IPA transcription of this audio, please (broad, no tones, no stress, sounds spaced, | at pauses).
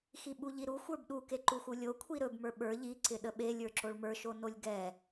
x i ɓ u ʎ i ɾ u xʷ ə˞ b ɗ u k e ǃ u x u lʲ o kʷʰ i ɾ ɵ b m ə˞ ɓ ə˞ ʎ i ǀ ɪ ɗ ə ɓ e lʲ ə˞ ǁ o ɭ m ə˞ ʃ o n o lʲ ɡ ɛ